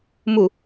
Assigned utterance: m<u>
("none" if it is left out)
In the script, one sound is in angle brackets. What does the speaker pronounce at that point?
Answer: u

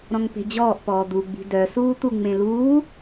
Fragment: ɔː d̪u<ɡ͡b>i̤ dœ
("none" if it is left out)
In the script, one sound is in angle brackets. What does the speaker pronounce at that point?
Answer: ɡ͡b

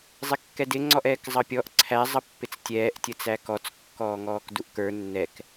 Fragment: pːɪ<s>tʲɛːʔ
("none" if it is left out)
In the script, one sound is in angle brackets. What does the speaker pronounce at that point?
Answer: t͡s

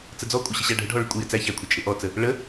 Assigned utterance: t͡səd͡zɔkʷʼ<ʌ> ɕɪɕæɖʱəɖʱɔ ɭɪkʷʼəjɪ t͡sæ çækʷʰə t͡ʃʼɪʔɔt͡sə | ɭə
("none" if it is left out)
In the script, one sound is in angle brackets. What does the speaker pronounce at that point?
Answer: ʌ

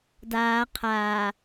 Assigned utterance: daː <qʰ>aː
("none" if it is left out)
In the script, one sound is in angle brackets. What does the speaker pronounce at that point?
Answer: qʰ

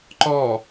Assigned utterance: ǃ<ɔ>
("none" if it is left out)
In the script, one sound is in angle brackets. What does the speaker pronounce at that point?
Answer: ɔ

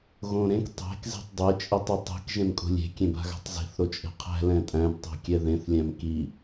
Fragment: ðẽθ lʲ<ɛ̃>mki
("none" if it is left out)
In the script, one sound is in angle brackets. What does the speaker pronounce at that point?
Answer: æ̃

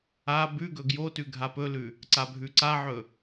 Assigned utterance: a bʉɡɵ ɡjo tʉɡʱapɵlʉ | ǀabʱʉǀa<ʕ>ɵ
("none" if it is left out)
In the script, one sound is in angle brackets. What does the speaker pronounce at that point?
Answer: ʕ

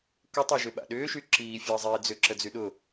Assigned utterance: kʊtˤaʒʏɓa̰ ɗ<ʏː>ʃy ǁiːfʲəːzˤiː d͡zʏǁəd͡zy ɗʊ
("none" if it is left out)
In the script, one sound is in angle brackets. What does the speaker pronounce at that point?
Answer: ʏː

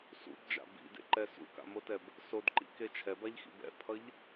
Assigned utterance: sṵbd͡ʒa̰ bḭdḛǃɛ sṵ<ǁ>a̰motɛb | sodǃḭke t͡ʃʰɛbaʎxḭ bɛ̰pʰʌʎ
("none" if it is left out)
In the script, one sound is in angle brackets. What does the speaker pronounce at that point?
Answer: k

